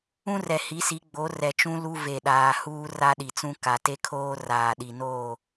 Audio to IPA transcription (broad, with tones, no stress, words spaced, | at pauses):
ũ˦rɛ˨hi˨˦si˨˦ ɡ͡bo˨˦rɛ˨t͡ʃũ˦ lu˦ ve˨ɗaː˨ huː˦ra˦ɗi˨t͡sũ˦ ka˨te˦ kʰoː˦ raː˨ɗi˨noː˦˨